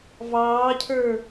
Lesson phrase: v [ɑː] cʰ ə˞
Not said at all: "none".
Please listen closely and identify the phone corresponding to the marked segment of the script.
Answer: ɑː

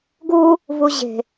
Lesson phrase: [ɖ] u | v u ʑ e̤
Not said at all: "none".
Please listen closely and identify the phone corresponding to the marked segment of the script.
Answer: ɡ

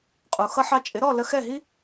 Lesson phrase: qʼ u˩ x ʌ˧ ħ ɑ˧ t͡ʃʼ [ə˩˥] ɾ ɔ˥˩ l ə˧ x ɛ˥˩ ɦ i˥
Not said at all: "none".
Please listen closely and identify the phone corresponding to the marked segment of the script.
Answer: ɪ˩˥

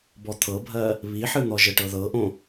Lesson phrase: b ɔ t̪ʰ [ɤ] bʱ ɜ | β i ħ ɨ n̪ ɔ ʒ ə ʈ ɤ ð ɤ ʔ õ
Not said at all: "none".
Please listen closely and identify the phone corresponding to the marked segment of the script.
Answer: ɤ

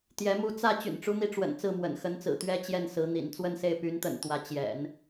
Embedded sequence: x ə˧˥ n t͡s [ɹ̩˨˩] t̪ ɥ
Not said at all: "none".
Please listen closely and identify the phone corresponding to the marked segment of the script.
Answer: ɹ̩˨˩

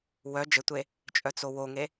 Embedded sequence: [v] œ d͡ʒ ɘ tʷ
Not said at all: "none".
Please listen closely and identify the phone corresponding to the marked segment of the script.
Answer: w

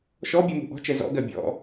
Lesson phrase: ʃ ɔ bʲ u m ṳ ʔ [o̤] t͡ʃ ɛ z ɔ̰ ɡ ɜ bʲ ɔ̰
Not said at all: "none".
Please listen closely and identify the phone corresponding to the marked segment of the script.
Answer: ɔ̤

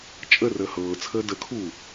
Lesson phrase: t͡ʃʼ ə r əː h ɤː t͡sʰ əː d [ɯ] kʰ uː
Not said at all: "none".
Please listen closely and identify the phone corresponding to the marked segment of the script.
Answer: ə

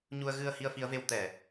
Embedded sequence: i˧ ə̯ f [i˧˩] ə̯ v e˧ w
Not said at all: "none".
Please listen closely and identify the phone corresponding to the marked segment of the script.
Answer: i˨˦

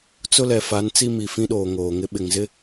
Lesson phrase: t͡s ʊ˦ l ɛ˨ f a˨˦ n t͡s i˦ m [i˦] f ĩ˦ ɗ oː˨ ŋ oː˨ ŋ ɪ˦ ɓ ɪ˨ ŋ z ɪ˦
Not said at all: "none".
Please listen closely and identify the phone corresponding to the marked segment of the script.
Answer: i˨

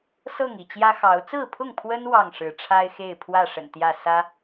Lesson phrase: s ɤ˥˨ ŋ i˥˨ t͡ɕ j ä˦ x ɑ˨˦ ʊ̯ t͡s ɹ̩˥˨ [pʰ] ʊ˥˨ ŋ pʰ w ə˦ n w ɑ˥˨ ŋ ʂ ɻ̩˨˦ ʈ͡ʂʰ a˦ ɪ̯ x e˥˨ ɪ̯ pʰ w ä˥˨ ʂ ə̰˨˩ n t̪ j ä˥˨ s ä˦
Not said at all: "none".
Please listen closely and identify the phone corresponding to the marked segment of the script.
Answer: pʰ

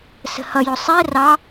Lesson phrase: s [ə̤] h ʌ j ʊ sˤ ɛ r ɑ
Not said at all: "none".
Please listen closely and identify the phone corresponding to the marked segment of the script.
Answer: ə̤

